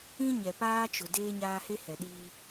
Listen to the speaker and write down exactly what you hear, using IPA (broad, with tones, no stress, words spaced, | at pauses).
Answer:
ĩ˦ ɲɛ˨paː˦t͡ʃʊ˨ deː˦ɲaː˦he˦ hɛ˨ɗiː˦